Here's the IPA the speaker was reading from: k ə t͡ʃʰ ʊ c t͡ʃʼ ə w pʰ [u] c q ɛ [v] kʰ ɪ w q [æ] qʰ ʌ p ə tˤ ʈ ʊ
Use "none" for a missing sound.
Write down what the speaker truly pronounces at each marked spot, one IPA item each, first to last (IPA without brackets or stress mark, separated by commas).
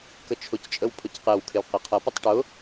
ʊ, w, ɛ